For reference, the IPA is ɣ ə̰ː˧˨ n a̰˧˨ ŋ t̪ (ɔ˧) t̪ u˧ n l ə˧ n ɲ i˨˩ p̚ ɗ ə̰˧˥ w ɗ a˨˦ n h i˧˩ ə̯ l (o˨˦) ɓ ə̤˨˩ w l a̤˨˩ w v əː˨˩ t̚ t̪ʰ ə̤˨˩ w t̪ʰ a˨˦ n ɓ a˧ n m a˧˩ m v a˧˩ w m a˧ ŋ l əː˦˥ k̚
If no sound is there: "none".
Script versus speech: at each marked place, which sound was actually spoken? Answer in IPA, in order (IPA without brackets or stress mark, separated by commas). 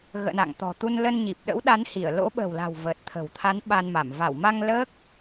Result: ɔ̤˨˩, o̰˧˥